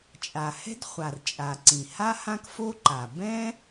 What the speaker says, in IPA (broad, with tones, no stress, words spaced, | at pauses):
t͡ʃʼa˩hɛ̤˥dχʷa˩r t͡ʃʼa˩ǀĩ˩ha˥ hã˥kfo˥ǃa˩ bɛ̃˥